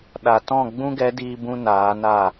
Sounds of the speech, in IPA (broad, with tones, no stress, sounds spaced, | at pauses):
ɗ a˨ t ɔ̃˦˨ ɡ͡b ũ˦ ɡ ɛ˨˦ d iː˧ b ũ˧ n aː˨˦ n a˦˨